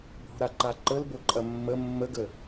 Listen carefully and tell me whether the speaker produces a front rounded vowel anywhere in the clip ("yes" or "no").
no